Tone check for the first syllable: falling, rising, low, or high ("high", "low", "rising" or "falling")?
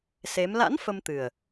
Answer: rising